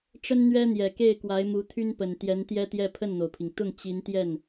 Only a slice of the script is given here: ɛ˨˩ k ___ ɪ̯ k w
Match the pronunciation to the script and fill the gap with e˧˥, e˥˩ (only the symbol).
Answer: e˥˩